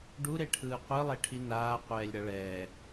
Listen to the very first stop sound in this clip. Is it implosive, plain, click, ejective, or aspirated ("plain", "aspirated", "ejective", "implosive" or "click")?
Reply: plain